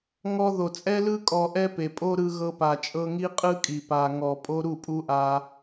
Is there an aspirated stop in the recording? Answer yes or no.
no